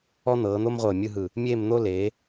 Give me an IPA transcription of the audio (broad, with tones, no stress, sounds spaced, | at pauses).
ɔ˥ n̪ ɤː˩˧ n̪ o˥ m ʁʷ ɤː˧˩ mʲ ɯ˥˧ ɦ ɯ˧˩ | mʲ eː˥˧ m n̪ o˥ l eː˩˧